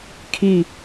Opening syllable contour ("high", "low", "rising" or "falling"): falling